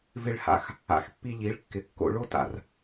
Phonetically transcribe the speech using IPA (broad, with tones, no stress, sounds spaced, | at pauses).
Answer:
v ɪ˧ ɭ h a̰˧ x | a̰˨ x pː i˧ ʎ i˨˦ ɭ kː ɪ˨ kː o̰˧ ɭ o˦ t a̰˨ r